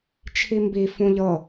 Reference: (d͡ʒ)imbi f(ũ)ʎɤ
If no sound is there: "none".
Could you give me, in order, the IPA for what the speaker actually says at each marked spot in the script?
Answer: t͡ʃʰ, ũ

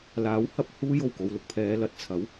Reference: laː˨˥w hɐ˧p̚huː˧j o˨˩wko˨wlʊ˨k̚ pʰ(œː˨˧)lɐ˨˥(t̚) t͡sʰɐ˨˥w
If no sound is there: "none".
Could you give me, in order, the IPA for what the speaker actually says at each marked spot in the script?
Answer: ɛː˨˧, t̚

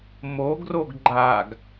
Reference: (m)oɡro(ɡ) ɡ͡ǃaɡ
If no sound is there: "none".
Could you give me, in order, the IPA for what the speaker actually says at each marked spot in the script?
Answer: m, ɡ

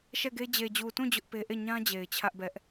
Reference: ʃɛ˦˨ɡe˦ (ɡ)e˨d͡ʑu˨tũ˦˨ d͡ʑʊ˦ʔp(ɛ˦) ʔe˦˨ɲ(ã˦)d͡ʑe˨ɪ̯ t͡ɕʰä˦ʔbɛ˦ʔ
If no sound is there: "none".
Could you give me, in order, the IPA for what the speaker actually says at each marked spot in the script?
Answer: d͡ʑ, e˦, ã˦

